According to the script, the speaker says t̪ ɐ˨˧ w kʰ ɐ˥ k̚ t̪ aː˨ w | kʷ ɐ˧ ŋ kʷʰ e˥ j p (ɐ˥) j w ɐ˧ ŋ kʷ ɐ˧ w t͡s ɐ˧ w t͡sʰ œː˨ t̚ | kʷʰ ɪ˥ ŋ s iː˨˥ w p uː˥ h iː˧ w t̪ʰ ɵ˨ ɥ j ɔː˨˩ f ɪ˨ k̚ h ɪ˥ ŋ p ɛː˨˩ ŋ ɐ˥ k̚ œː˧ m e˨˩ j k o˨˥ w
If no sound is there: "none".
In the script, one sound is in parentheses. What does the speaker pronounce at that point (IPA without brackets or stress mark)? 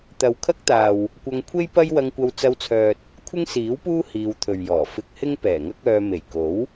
ɐ˥